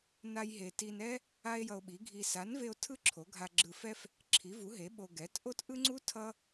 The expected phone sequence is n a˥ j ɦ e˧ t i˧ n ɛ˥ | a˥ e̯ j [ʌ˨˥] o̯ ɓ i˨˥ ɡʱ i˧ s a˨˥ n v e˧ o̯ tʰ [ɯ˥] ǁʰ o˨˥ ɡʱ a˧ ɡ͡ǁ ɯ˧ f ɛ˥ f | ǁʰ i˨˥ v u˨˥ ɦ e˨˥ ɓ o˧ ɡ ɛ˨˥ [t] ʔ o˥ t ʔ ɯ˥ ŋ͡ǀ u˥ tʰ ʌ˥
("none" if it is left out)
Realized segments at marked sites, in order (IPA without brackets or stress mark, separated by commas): ʌ˧, ɯ˥, t